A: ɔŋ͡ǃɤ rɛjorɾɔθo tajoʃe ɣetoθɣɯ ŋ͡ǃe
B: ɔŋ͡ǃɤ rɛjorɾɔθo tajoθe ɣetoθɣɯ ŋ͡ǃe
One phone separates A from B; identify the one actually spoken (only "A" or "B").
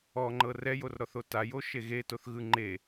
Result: A